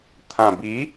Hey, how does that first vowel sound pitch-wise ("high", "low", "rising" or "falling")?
low